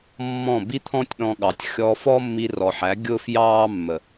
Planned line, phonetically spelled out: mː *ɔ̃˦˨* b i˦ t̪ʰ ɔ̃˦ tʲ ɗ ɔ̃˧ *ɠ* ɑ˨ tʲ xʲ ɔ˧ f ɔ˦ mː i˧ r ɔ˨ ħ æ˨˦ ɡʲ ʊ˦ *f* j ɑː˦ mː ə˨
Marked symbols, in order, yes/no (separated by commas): yes, yes, yes